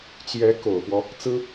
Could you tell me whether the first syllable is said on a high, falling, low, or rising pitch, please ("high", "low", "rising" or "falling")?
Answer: rising